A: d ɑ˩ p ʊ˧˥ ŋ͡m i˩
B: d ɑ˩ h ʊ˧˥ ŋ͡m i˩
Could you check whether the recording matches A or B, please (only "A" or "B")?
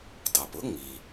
A